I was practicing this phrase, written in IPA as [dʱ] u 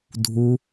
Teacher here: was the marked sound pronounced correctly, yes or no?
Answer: yes